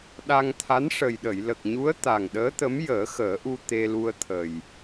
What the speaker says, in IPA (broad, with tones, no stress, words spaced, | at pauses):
ɗa˧ŋt̪ʰa˧˥n ʂə˨˩jɗə˨˩˨jlə˨˩k̚ɲu˧˥ə̯ t̪a˨˩ŋɗəː˧˥t̪ə˧˥m jəː˨˩˦xəː˨˩˦ʔu˧ t̪e˧lu˧ə̯t̪ʰə˨˩j